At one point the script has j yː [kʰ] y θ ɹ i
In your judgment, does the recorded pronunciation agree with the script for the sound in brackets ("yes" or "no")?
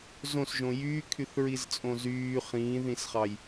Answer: yes